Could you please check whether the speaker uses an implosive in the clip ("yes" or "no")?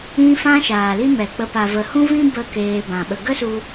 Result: yes